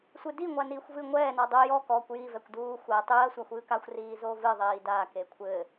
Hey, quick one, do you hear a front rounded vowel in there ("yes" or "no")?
no